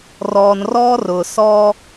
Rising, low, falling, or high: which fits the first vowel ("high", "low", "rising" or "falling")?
low